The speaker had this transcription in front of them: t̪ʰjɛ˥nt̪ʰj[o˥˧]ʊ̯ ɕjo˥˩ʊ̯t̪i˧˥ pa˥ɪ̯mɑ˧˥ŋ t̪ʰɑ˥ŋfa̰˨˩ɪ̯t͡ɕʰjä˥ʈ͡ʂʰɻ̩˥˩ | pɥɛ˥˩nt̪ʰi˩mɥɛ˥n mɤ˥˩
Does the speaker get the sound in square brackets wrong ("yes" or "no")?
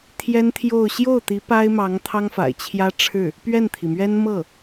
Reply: no